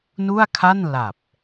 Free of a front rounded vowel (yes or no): yes